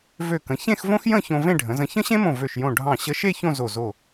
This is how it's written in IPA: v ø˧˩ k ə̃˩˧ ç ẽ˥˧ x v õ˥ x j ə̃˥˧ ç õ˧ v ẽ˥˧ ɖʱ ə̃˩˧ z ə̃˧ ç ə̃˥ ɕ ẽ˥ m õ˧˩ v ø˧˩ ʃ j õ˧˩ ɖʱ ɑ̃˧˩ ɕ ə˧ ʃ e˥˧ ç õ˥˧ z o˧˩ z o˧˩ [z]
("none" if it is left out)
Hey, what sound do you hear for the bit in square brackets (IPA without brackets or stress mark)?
none